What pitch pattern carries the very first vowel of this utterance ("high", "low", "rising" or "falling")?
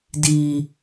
high